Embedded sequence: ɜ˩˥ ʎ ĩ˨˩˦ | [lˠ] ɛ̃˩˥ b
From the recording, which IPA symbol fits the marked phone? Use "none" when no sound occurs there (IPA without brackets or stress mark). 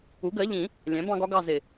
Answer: lʲ